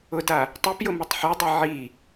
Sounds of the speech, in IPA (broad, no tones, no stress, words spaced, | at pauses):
ʊda | tˤɨpjʊ mɨtˤħɨdˤɘ ʕi